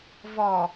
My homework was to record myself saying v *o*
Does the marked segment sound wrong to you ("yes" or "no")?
yes